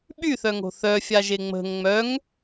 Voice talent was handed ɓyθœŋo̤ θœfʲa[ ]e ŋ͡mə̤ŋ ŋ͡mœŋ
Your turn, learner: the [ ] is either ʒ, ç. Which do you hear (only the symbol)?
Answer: ʒ